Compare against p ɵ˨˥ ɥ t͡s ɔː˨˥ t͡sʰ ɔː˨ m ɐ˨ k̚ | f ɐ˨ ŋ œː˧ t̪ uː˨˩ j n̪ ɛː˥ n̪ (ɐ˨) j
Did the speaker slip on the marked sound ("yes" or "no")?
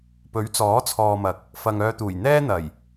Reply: yes